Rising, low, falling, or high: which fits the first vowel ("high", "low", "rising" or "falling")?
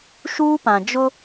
high